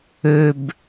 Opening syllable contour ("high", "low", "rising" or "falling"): low